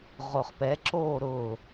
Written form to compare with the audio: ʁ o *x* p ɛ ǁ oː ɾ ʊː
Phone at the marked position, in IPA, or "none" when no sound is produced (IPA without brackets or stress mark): χ